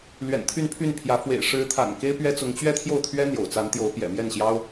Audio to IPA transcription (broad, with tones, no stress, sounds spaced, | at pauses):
l ɥ ɛ̰˨˩ n t̪ʰ y˥˧ n pʰ y˥˩ n pʰ j ä˧˥ f w ḛ˨˩ ɪ̯ ʂ ɻ̩˧˥ t̪ʰ a̰˨˩ n k e˥ ɪ̯ p ɥ ɛ˥ t͡s ʊ˧˥ ŋ t͡ɕ ɥ ɛ˥ t̪ʰ j o˥˩ ʊ̯ t̪ʰ ɥ ɛ˥ n̪ j o̰˨˩ ʊ̯ t͡s a˧˥ n t̪ j o˧˥ ʊ̯ p j ɛ̰˨˩ m j ɛ˥˩ n ɕ j ɑ˥ ʊ̯